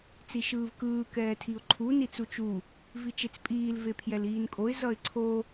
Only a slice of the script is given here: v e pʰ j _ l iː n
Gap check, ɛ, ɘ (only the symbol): ɛ